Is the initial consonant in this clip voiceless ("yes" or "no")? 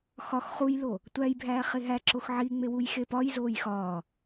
yes